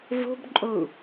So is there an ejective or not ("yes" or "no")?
yes